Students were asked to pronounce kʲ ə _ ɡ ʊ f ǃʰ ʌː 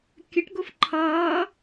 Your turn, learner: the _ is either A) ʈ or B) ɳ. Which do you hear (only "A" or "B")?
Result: A